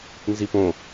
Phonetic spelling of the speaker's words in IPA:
nzipõ

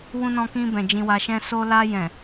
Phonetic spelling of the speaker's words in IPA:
wũ˧nɔ̃˧kĩ˧bɛ̃˨ d͡ʒĩ˧wa˧ʃɛ̃˦ so˧la˧jɛ̃˨

